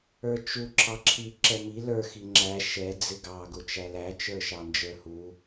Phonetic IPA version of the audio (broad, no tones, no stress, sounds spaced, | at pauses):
ə˞ t͡ʃ u ǁʰ ɑ ǁʰ i ǁ ɛ m i l ə˞ x i ŋ͡ǁ æ ʃ ɛ d͡z ɪ ɡ ɑ ɡ ʊ t͡ʃ æ l æ t͡ʃ ə˞ ʃ ɑ n d͡ʒ ə˞ h u